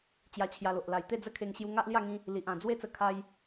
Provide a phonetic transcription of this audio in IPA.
t͡ɕ j a˧ t͡ɕʰ j a˧ l o˨ ʔ l a˨˩ j t̪ e˥˧ d͡z ə˦ kʰ e˧ ŋ ɕ j u˧ ŋ a˦ ʔ l j a˥˧ ŋ ĩ˧ | l i˨ ʔ ã˨˩ d͡z w e˦ t͡s ə˧ kʰ a˧ j

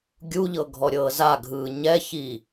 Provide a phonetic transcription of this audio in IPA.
ɡʲ u ʎ ɤ ɡʱ ɔ ɾʲ ɤː z a ɡʱ ɯː ɲ ɛ ç iː

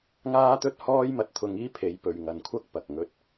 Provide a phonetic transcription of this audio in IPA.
ŋ aː˥ t̪ ɵ˥ t̚ h ɔː˥ j m ɐ˧ t̚ t̪ʰ ʊ˧ ŋ iː˥ pʰ e˨˧ j p ɵ˨ ɥ ŋ ɐ˨ n kʷʰ ɐ˥ k̚ p ɐ˨ k̚ ŋ ɵ˥ t̚

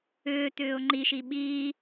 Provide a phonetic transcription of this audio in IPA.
ʏː t̪ ʏː ʊ̯ ŋ͡ǃ i ʃ i ɓ iː

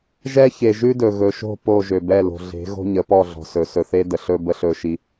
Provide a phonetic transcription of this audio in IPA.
ʒ ɛ˦ ç e˨ ʒ ʉ˦ d ɵ˨ ɣ ɵ˨ ʃ o̤˦˨ p o˦˨ ʒ ø˨ b ɛ˦˨ l o̤˨ ɮ e̤˨˦ ɣ o̤˦ ɲ ə˨˦ p ɔ˦˨ ɮ ɔ̤˨ s ɵ˨ s ɵ˨ θ e˦ d ə˨ ɬ ɵ˦ b ə˦ ɬ ɵ˦ ʃ i˦

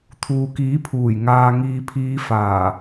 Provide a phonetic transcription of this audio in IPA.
t̪ʰ uː˨ k iː˨˥ pʰ uː˨˩ j ŋ aː˨ ŋ iː˨ pʰ iː˨˧ f aː˨˩

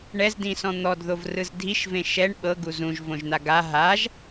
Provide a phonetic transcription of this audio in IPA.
ɳ ɛ z d ĩ s ɔ̃ n̪ ɔ d ð o v r ɯ z dʱ i ʃ v ẽ ʃ ɛ ɳ ɓ ɤ ɡ u z ũ ʒ v õ ʒ n̪ a ɡ a ɦ a ʒ

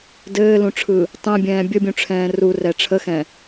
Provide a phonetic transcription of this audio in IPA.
d ɘː l ũ ʈ͡ʂʰ ɯ | tˤ ɛ̃ bʲ ɛ̃ː bʲ ə bʲ ũ ʈ͡ʂʰ ɛ̃ː r u r ɛ ʈ͡ʂʰ ə x ɛ̃

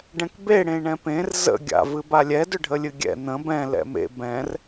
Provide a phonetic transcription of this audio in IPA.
ɖ ɛ̃ k b e ɽ ẽ ɳ ɛ̃ p ẽ r z ə̰ ɡʲ a̰ v ɨ b a lʲ ɛ d ʏ ɖʱ ə lʲ ɨ ɡʲ ɛ̰ n̪ ə̃ b ɛ̃ l ɛ̰ m ḛ b ɛ̃ r

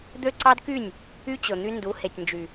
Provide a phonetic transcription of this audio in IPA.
d̪ ø˦ ǀ ɑ˦ d k y˦˨ nʲ | y˦ t͡ɕ ɵ˨ n̪ y˦ n d u˨˦ h e˨ tʲ n d͡ʒ y˨

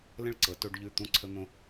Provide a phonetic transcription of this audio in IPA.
l ə̃˥˧ ɭ ǀ ɤ˩˧ t o˧ ɖ ʎ ʉ˧˩ t̪ ũ˧ ǀʰ ə˧ n̪ õ˧

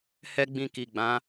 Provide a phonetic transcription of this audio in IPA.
h ɛ˦ ɡ͡b ĩ˧ k i˨ ɡ͡b ã˨˦

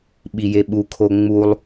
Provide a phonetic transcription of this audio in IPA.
ɓ i j e ɓ u kʰ o ŋ͡m u lˠ

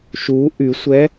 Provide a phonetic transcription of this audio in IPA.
ʃ u ʔ y sʷ ɛ

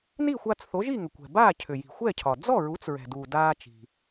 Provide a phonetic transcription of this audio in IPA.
n i˥˩ xʷ aː˧ t͡s θ o˩˥ ʒ i˥˩ ŋ ʏ˩ kʷ ɛ̤˩ b aː˥˩ cʰ ʏ˩ j i̤˩ xʷ ɛ˥˩ cʰ ɒ˩ d͡z ɔ˥˩ ɹ u˩˥ t͡s ɹ ɛ̤˩ d uː˩ d aː˧ t͡ʃ i̤˩

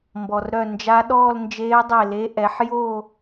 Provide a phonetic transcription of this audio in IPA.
m b ɔ˩ r ɾ œ˧˩ n d͡ʒ a˧˥ ɗ ɔː˥˧ l n d͡ʒ eː˧˥ dˤ e˧˩ l e˧˥ ʔ ɛ˩˥ ħ j o˥˧

